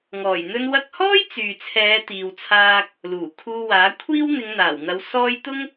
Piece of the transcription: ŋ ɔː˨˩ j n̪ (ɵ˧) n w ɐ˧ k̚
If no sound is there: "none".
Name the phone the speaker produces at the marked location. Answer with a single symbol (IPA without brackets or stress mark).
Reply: ɵ˧